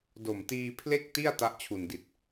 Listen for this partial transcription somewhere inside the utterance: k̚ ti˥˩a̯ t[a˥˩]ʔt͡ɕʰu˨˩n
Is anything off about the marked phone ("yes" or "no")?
yes